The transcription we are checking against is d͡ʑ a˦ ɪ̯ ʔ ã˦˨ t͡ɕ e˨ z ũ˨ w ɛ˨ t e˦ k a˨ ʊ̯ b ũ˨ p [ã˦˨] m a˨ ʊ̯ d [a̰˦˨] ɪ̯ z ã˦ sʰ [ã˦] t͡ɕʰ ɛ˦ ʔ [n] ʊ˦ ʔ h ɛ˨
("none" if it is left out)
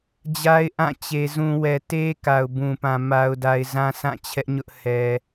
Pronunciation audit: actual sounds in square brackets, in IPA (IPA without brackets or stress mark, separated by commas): ã˨, a˨, ã˦˨, ɲ